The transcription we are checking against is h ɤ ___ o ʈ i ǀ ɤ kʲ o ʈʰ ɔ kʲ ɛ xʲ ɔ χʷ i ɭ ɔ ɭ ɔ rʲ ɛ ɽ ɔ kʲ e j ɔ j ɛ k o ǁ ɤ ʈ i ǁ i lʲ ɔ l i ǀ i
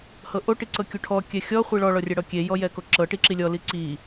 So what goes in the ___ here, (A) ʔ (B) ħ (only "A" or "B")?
A